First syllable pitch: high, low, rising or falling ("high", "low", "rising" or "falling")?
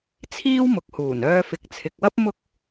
high